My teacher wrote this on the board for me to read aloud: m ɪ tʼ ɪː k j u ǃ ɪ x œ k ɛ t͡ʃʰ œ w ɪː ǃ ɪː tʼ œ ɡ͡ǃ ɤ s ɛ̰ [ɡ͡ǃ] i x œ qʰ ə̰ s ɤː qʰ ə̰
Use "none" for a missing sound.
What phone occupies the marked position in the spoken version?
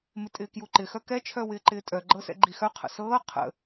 ɡ͡ǃ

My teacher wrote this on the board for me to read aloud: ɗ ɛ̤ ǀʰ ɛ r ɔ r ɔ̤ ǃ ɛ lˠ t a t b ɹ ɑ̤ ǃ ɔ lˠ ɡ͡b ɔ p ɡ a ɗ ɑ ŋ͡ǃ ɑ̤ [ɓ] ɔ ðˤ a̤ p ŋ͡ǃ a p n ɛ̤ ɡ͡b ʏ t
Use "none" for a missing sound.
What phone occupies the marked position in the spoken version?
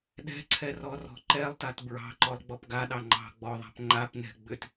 ɡ͡b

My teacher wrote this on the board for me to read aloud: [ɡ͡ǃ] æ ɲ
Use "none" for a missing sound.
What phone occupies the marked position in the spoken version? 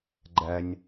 ɡ͡ǃ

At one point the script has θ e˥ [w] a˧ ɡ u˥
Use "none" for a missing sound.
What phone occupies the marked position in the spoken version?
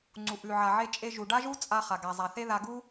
ð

